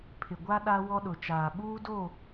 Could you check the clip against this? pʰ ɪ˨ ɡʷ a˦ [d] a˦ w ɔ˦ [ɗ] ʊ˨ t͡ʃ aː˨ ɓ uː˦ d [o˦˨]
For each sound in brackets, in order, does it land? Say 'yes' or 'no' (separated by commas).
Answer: no, yes, yes